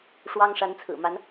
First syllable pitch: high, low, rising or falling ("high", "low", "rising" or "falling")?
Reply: high